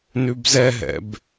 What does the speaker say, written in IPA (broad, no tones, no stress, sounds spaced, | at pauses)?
n ʉ b z ɛ ɦ ɛ̰ b